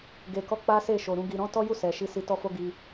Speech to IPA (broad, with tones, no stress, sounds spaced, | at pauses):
ɡ e˨ k ɔ˧ k͡p a˦ s e˦˨ ʃ o˨ ɾ ũ˨ ɡ i˨ ɾ ɔ̃˨˦ t ɔ˦ j u˦˨ s ɛ˨ ʃ i˧ s i˧ t ɔ˦ f o˦ ɡ i˧